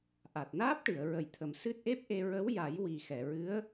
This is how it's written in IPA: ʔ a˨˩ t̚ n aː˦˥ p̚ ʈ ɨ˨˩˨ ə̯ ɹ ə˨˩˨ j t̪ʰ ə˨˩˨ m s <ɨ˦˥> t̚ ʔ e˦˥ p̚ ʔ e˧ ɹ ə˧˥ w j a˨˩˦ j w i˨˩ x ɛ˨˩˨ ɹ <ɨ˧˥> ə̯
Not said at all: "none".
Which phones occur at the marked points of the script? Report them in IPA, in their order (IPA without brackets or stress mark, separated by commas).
ɨ˦˥, ɨ˧˥